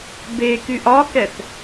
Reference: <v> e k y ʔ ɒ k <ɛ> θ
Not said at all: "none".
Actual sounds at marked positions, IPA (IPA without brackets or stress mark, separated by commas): b, ɛ